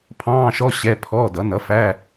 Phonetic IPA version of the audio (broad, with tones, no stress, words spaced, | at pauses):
pʰɑ̃ː˧˥˧ʃɔ˧˥˧ ɕɛ˧˥˧ pʰɔː˧˥˧dʌ˩˥ nʌ˩˥fæ˧˥˧